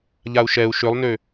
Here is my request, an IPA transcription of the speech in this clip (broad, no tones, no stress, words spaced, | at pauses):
ʎau̯ʃɛu̯ ʃølˠnø